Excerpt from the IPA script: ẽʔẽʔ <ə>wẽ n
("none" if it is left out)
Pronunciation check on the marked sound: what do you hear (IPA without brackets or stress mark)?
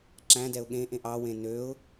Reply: ɑ